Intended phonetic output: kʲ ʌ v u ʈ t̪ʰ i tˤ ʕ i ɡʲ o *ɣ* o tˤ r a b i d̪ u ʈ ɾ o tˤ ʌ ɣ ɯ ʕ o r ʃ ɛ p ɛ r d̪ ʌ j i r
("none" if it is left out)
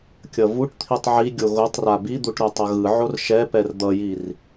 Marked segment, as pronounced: ɣ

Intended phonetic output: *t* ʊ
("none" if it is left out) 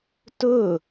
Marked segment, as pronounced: t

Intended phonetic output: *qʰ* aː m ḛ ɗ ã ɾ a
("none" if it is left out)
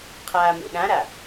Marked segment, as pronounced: qʰ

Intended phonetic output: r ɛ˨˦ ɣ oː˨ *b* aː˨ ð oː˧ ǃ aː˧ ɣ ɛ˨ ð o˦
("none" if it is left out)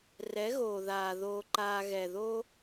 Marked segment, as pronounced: ð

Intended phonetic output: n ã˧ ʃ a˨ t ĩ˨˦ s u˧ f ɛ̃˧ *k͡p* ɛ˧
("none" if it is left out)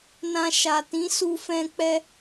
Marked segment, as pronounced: k͡p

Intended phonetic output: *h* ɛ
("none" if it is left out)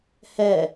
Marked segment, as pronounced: h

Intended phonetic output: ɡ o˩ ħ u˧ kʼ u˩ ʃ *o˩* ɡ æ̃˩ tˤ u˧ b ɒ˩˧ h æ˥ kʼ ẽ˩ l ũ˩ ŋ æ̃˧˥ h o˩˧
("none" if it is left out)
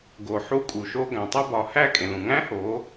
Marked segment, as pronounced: o˧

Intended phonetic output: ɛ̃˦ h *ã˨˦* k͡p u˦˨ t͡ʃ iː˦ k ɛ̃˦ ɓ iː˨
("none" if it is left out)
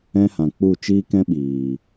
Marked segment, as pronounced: ã˨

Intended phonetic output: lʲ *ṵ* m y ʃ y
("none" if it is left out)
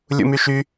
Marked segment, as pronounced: ṵ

